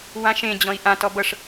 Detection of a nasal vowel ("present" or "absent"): present